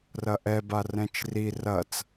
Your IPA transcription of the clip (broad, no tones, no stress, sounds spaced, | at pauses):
r ɐ ʔ ɛ b a r ɛ̃ t͡ʃ r i r ɐ t͡s